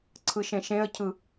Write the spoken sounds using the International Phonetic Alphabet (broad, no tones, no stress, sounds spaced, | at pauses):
ǀʰ ɯ ʃ ẽ ʃ ẽ ə̯ cʰ ɯ